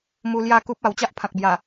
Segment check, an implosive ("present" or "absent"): absent